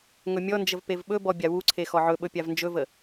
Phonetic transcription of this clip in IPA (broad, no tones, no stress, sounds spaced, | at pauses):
ŋ ɵ mʲ ɔ n d͡ʒ ə v p e v ɓ ɵ b ɔ bʲ a w u ǀʰ e x ɔ ʕ ɵ ɓ ɵ pʲ a v n d͡ʒ ɵ v ə